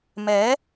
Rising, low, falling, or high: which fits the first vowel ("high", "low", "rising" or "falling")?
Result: rising